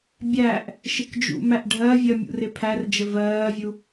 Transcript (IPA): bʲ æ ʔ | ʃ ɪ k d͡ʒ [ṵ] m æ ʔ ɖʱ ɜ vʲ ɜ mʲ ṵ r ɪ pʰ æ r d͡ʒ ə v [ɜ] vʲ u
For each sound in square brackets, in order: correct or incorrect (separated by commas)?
correct, incorrect